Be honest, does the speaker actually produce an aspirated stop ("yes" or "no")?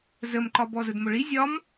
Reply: no